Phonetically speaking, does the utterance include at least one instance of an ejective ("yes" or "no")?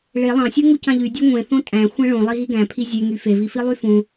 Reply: yes